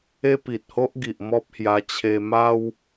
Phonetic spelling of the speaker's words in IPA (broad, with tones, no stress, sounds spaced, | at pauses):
e˦ p i˨ t̚ h o˦ ʔ ɡ i˨ ʔ m ɔ˦ p̚ h j a˧ t͡ɕʰ e˧ m a˧ w